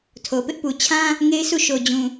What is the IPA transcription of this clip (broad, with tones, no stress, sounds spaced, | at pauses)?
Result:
tʰ o˨ p ɪ˦ ʔ p u˨ t͡ɕʰ ã˦ | ŋ e˦ ɪ̯ s u˦˨ ʃ o˨ d͡ʑ ũ˨